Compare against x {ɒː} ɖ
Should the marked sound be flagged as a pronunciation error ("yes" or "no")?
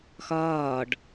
no